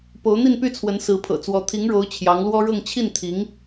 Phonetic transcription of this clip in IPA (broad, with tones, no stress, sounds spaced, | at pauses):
p o˧˥ ʊ̯ n̪ i˥˧ n p y˥˩ t͡sʰ w ə˧˥ n s ɹ̩˧˥ pʰ ɤ̰˨˩ t͡s w ɔ˧˥ t̪ʰ i˧˥ ŋ ɻ o˧˥ ʊ̯ t͡ɕʰ j ɑ˧˥ ŋ l w ɔ˥ ɻ ɤ˥˧ ŋ t͡ɕʰ i˥˩ n t̪ʰ i˧˥ ŋ